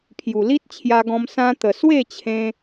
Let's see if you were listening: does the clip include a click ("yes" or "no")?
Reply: no